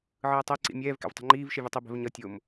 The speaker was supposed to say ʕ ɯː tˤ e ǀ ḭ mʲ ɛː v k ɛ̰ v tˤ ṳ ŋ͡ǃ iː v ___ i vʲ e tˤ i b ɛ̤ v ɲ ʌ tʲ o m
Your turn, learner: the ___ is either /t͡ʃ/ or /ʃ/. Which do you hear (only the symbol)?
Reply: ʃ